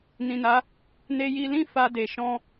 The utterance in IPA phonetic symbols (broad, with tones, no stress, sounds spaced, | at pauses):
n ĩ˨ n a˨˦ | n e˧ j i˧ l ĩ˦ f a˧ d e˨ ʃ ɔ̃˧